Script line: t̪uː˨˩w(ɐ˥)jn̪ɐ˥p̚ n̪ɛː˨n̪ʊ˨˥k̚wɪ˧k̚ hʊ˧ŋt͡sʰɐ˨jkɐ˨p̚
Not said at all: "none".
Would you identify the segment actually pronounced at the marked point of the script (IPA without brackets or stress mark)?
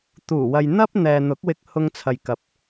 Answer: ɐ˨